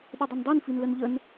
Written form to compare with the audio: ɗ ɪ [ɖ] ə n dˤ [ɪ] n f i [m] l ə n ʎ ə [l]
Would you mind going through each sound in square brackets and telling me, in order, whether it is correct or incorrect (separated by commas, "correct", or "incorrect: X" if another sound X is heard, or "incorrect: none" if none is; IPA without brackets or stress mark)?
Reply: incorrect: dˤ, incorrect: i, incorrect: n, incorrect: n